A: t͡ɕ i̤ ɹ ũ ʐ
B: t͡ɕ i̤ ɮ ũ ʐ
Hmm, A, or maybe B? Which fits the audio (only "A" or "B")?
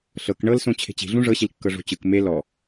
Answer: B